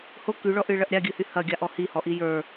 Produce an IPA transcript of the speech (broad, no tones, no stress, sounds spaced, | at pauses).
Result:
h o k y ɭ ɔ ʔ ɨ ɭ ɐ ʔ ɾʲ a ɡʲ ɨ h y h ɐ ɡʲ a ʔ ɔ h i h ɔ ʔ i j ə˞